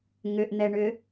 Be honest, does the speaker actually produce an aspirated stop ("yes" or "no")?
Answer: no